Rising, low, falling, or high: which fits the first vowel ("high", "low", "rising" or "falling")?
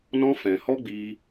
high